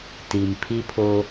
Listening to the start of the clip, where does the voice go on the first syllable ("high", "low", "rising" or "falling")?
low